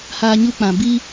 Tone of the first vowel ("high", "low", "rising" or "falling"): high